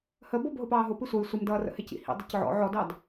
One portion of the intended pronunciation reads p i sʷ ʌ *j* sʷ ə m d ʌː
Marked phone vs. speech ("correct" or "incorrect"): correct